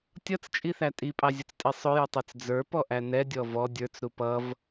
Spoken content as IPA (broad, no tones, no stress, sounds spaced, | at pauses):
tʲ ʌ t͡s t͡ʃʼ i θ æ tʼ i pʼ ɑ zʲ ʊ t͡s tʼ i sˤ ʊ j u tˤ ə˞ t͡s d͡z ə˞ p ɔ ʔ æ n ɛ dʲ ɔ v ɔ dʲ ə˞ t͡s ɾ u p ʌ v